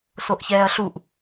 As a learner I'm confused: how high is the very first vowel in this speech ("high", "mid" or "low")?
mid